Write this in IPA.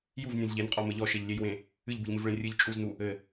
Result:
juvnʲẽz ʎenqʼɔmɘ ʎɔʃeʎlʲejwẽ | ɨʎbɨʎmɨvɭẽ rʲɨʎ t͡ʃʼuznu | ɘ

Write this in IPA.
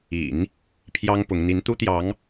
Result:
ḭ˨˩˦n | pʰjɑ˥ŋ pʊ˧˥ŋ n̪i˧˥nt̪u˥t̪jɑ˧˥ŋ

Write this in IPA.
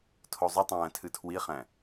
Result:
tʰozˤutˤæ̃ː tʰɨtʰwiχæ̃

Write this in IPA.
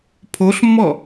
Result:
pʰoɬmːɔ

